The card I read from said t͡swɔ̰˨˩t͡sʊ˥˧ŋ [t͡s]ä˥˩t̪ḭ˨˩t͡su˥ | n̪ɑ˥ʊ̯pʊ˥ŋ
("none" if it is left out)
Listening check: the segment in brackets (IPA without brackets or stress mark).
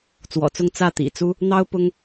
t͡s